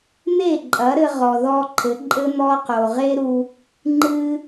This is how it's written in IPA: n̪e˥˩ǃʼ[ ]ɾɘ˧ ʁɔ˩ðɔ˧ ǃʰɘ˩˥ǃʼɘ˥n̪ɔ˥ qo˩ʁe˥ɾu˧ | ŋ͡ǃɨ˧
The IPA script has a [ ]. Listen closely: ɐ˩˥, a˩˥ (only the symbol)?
ɐ˩˥